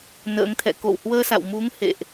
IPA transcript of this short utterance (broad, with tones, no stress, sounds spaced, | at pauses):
n ə̰ː˧˥ ŋ t̪ʰ ɛ̰˧˨ k o̰˧˨ w h w əː˧ s a̰˧˨ w m u˨˦ ŋ h ḛ˧˨ ʔ